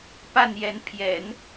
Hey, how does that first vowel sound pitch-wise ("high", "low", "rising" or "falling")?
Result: falling